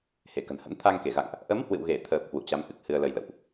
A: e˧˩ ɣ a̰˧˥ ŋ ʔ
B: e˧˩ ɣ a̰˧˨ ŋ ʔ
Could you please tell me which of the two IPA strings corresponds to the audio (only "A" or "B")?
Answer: B